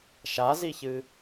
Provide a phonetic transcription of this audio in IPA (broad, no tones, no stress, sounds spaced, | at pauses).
ʃ a z i ç ɨ